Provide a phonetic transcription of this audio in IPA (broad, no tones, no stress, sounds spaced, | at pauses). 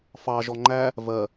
f ɑ ʒ ɔ ŋ͡ǃ æ | v ɜ